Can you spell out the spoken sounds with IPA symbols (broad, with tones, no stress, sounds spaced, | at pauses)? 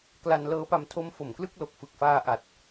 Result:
k l a˧ n l ɤː˦˥ p a˧ m tʰ o˦˥ m f o˨˩ m k l ɯ˥˩ k̚ l o˨˩ k̚ f ɯ˨˩ k̚ f aː˧ ʔ a˨˩ t̚